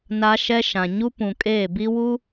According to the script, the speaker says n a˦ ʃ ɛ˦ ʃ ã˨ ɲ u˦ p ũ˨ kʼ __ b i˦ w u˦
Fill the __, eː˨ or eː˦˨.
eː˦˨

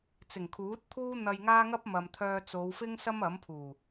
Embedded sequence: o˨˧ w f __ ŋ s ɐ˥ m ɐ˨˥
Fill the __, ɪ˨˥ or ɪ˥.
ɪ˥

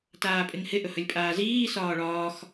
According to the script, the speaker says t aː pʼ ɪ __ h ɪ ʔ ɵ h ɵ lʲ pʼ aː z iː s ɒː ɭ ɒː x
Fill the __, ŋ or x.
ŋ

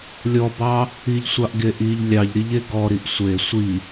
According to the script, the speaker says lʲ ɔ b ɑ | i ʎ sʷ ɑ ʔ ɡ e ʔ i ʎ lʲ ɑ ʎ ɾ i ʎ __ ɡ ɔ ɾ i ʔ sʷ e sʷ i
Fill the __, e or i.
e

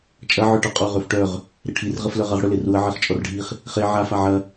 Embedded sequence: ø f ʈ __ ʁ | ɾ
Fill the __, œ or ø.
œ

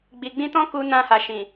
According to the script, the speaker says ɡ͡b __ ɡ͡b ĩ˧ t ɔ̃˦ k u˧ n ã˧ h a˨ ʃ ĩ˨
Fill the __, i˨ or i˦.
i˨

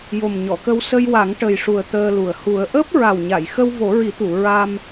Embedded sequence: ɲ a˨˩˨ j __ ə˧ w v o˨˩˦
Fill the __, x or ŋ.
x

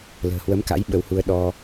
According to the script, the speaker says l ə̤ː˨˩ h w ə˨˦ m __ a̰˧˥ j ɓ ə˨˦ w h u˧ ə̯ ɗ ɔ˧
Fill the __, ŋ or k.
k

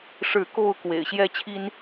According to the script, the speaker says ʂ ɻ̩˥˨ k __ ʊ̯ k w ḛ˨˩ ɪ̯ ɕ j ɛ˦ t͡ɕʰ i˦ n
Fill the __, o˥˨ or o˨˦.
o˥˨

